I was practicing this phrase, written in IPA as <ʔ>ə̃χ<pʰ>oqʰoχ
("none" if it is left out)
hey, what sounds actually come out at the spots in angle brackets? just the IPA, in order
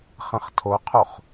χ, tʰ

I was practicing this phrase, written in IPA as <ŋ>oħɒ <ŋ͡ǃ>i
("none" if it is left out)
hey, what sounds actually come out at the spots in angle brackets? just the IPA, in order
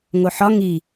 ŋ, ŋ

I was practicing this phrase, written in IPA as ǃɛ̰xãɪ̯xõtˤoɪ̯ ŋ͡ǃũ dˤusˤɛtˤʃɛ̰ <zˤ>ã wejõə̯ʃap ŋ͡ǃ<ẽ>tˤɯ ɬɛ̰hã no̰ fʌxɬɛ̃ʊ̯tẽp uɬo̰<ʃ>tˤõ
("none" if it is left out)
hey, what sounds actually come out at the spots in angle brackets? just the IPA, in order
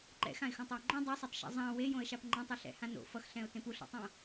zˤ, ɛ̃, none

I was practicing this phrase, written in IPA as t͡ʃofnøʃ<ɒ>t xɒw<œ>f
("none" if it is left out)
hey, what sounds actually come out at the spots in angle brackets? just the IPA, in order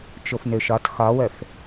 ɒ, œ

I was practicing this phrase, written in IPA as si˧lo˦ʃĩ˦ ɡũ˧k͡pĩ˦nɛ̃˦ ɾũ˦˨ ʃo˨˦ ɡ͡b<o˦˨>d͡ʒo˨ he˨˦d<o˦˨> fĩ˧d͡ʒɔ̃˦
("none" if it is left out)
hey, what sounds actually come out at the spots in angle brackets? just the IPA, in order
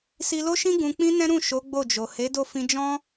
o˦˨, o˦˨

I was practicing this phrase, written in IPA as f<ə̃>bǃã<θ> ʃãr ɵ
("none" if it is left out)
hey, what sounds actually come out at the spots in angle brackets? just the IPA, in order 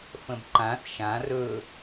ə̃, θ

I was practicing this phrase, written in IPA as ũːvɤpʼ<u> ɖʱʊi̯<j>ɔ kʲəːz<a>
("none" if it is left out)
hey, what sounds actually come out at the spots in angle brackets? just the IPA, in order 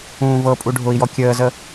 u, j, ə

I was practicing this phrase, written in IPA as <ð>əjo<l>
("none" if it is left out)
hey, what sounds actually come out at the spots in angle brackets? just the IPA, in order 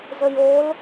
z, l

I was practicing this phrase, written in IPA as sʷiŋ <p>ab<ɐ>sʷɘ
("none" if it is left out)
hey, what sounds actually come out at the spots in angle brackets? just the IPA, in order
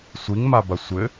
m, ɐ

